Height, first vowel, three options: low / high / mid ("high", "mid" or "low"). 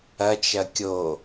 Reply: low